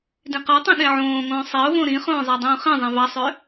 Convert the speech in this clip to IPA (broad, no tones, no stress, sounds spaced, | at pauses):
d ĩ q ɑ tˤ ũ ɗ ẽ ʕ õː ŋ õː sˤ e ʊ̯ v õ ɾ ĩ χ õː zˤ æ dˤ ũː χ ĩ zˤ ĩ v ɑ sˤ ø